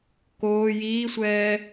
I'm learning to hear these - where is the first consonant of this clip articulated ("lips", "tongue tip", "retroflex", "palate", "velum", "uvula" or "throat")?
velum